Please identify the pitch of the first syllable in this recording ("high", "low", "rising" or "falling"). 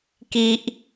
high